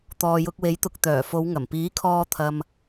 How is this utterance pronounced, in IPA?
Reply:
t̪ ɔː˨ j ʊ˧ k̚ w e˨˥ j t̪ ʊ˨ k̚ t̪ œː˨˩ f o˨˧ w ŋ ɐ˨˩ m p iː˨˥ kʰ ɔː˧ t̪ʰ ɐ˨ m

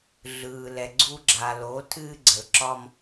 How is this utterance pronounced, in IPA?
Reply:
ɮ ɯː˨ l ɛ˨ ɡ͡ǀ u˦ ɡ͡ǁ a˨ l o˨˦ tʰ ɨː˦ ɡ͡ǀ ə˨ l ǁ ɒ˦ m

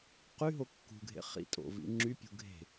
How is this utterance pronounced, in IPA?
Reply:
q y ɦ o kː ṳ ɡʱ ḛ χ ḭ tʼ o̰ v ḭ ŋ͡ǁ y pʲ ṳ ɡʱ e̤

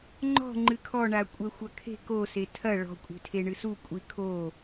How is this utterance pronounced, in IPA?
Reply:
ŋ͡ǃ ɔ̤ ŋ͡ǃ ɨ kʰ ɔ ɳ a kʷʼ ɛ xʷ ɐ kʰ e̤ k o s e tʰ ɐ ɭ ɔ̤ kʷʼ e̤ tʰ e ɳ ɨ s u kʷʼ i kʰ o

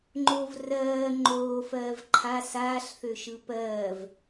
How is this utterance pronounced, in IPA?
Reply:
ŋ͡ǃ o v r ɜː ŋ͡ǃ oː f ɜː v ǃʰ a s aː ɬ θ ø ʃ ɯ p ɜː v

